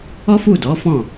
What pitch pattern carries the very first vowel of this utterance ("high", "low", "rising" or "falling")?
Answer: high